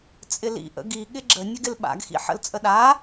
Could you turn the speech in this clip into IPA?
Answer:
t͡sʼ ɪ l ḭ ʔ ə̰ ɡ i ɠ ɪ ɡ͡ǁ ə nʲ ə ɡ ɪ l ɓ a̰ ɡ x ḭ ħ ə̰ l t͡sʼ ə ɗ a

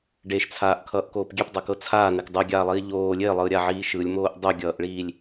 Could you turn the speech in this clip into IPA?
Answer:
ɖ e ʃ t͡sʰ aː ʔ kʰ ʌː ʔ k oː p ɡʲ e p dˤ ɤ k ɤ t͡sʰ aː n e k dˤ ʉ ɡʲ aː lˠ iː ʎ oː lʲ e lˠ ɯː ɾʲ a ʕ iː ʃ ɯ lʲ m oː ʔ dˤ ʉ ɡʲ ʌː ʔ ɭ iː lʲ

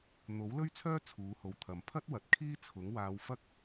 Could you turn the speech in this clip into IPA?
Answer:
n̪ o˨˥ w l ɵ˥ ɥ t͡sʰ œː˥ t͡sʰ uː˨˧ h o˨ w t̪ʰ ɐ˨ m pʰ ɐ˥ t̚ w ɐ˨ t̚ kʰ iː˥ t͡sʰ ʊ˨˥ ŋ w aː˧ w f ɐ˥ k̚

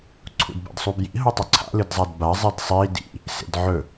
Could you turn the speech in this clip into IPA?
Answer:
ǀʰ ṵ d b a̰ d sˤ u b j ḭ ɦ o tˤ ʉ ǀʰ a̰ l ɨ d zˤ a d b a zˤ i d sˤ i d ḭ | s ḛ d ʕ ɵ

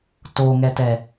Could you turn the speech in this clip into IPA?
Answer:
t o ŋ ɛ t ɛ

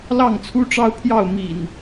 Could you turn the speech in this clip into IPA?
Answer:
l ɑ˥˨ ŋ t͡sʰ u˦ ʈ͡ʂ ɑ˦ ʊ̯ pʰ j ɑ˥˨ ʊ̯ m ḭ˨˩ n

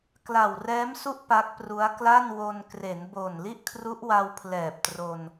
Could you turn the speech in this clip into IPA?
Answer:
k l a˨˩ w r ɛː˦˥ m s u˥˩ ʔ p a˦˥ k̚ p r u˦˥ a̯ k l a˥˩ n w o˧ n k r e˩˦ n b o˨˩ n l i˥˩ ʔ kʰ r u˦˥ ʔ w a˧ w pʰ l ɛː˨˩ p̚ t r o˧ n

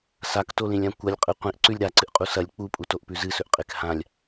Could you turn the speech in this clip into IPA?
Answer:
s a k t o l ĩ lʲ ã kʷ ɐ lʲ qʼ ɨ qʷ ĩ ʔ ǀ ʉ lʲ ɾ a ǀ ɨ ʔ qʼ u s ɐ lʲ k͡p u pʼ u t o ʔ p ʉ z ɨ s ɵ ʔ qʼ e k h ã lʲ

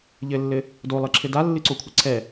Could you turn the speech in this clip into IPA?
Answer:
ʎ ɘ lː ɘ | d o lˠ ɨ ǁʰ ɘ d a lː ɨ ǀ o kʷʰ ɘ ǀʰ ɛ

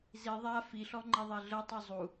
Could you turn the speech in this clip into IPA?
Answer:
z i ðˤ a f i ɬ ɔ ŋ͡ǃ e ðˤ e ɮ ɤ tˤ u zˤ u

